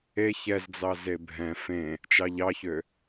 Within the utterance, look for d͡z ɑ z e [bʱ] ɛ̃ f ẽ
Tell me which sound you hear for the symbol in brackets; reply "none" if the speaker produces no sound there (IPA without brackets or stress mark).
bʱ